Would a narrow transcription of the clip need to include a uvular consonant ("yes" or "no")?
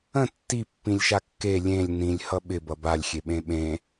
no